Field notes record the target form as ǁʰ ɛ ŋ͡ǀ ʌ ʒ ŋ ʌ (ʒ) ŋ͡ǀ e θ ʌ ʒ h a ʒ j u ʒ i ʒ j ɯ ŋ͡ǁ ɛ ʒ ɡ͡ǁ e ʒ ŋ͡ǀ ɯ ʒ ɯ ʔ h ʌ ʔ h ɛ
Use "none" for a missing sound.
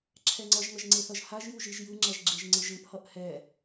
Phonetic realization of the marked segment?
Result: ʒ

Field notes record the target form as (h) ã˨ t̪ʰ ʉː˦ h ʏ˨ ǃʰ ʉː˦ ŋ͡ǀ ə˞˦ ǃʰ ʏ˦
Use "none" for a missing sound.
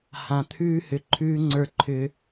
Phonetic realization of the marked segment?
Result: h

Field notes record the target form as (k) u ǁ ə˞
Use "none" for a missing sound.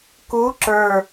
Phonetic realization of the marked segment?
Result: k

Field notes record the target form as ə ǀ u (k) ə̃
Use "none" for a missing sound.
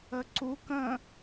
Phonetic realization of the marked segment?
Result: k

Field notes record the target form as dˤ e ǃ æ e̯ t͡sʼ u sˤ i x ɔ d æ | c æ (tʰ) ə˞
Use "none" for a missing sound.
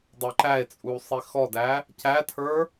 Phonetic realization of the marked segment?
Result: tʰ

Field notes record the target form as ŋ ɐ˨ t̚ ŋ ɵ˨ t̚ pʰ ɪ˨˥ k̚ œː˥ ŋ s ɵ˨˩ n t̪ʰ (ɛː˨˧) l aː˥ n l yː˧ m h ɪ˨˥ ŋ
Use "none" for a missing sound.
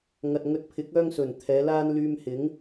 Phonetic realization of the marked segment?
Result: ɛː˨˧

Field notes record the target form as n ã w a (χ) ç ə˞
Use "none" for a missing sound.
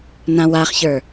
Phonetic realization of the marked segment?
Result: χ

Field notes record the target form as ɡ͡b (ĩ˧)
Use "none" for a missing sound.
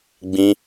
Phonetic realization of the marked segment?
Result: ĩ˧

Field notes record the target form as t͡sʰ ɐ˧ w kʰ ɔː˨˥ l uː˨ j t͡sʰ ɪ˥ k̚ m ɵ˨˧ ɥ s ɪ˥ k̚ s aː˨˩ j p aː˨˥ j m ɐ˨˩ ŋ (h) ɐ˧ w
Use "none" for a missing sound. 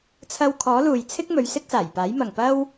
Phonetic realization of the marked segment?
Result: p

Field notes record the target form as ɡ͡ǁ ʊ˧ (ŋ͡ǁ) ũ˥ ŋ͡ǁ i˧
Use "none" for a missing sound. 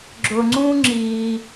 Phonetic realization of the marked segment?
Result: ŋ͡ǀ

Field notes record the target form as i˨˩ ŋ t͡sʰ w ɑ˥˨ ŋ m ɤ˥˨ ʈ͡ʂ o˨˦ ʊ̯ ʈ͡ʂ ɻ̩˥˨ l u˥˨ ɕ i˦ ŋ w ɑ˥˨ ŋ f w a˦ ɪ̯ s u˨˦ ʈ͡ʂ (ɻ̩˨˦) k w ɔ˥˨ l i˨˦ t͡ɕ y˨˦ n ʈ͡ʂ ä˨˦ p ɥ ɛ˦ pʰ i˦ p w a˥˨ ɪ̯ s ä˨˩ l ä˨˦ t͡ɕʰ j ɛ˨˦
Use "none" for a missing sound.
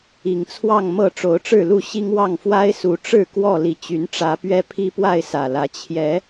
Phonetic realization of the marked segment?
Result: ɻ̩˥˨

